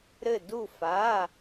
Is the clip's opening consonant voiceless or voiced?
voiced